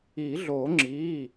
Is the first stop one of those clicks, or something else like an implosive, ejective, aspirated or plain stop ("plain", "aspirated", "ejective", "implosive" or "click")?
click